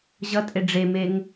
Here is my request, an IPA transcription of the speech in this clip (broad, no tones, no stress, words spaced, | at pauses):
ʑʌtʼe ɖ͡ʐemeŋ